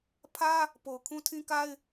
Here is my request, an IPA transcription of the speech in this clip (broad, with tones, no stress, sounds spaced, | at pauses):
pʰ ä˦ | p o˨ ʊ̯ kʰ ũ˦ tʰ ĩ˦ k a˦ ɪ̯